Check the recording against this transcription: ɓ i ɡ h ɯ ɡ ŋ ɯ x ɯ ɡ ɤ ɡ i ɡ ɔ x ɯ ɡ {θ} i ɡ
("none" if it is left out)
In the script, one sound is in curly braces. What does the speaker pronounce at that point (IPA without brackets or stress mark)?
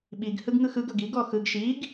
ʃ